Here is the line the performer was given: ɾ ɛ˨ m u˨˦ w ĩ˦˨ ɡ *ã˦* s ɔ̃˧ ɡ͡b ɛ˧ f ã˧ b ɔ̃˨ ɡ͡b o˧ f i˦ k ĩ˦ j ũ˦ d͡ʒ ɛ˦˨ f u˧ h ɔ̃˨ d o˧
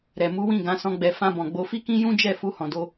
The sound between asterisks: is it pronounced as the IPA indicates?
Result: no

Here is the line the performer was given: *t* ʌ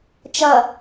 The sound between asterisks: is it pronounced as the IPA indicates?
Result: no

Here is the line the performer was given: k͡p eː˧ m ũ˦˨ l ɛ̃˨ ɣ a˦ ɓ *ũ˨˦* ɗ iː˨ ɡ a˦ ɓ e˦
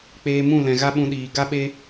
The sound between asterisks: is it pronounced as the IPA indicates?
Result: no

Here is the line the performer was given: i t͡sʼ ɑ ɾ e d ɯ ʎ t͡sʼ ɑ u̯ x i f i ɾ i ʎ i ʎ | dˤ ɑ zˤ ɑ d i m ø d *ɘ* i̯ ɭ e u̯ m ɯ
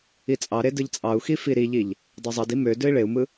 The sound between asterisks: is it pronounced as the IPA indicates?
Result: no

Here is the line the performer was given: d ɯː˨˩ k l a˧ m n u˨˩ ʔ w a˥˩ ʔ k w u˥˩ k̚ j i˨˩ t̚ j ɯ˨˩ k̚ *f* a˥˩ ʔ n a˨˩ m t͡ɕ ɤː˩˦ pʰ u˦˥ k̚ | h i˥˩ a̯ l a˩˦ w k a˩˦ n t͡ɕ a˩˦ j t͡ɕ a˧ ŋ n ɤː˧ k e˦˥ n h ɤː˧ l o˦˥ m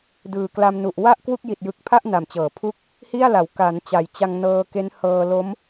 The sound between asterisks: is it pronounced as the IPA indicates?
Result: no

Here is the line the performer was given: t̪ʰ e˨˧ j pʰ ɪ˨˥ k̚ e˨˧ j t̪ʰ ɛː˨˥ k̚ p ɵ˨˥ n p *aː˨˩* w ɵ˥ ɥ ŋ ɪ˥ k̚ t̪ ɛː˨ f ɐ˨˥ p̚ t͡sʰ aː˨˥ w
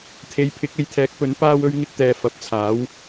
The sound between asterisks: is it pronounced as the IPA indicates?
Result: no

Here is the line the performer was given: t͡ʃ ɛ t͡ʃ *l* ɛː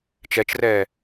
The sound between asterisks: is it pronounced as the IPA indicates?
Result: no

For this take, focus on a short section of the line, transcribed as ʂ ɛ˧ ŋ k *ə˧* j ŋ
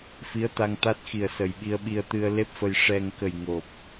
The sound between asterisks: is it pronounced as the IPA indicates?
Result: no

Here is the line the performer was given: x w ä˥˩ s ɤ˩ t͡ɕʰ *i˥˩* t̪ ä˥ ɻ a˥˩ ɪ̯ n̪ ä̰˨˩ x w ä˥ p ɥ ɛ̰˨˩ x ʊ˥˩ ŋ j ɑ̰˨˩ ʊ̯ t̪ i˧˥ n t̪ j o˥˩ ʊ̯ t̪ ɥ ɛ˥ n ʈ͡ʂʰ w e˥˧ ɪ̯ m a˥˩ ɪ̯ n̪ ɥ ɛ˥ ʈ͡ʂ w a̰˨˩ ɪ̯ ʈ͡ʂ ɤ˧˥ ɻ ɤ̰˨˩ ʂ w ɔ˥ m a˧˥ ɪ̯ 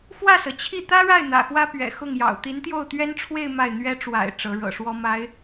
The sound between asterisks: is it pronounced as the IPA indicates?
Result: yes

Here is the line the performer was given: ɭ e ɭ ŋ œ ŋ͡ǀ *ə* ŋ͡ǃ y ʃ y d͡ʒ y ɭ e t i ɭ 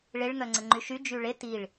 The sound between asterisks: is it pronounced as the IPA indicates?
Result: yes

